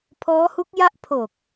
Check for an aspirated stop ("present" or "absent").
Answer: present